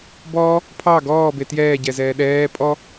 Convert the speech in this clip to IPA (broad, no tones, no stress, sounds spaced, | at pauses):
b ɔː | pʰ ɑ ɡ ɔː b e t j ɛː ɟ ɛ z ɛː ɗ ɛː pʼ ɔ